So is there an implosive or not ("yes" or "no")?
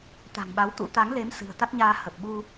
yes